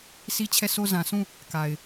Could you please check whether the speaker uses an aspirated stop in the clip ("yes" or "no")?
yes